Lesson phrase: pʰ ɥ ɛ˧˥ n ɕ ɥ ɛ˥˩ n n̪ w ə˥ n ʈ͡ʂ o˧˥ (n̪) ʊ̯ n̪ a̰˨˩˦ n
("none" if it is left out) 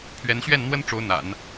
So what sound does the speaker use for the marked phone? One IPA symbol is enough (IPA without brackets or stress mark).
none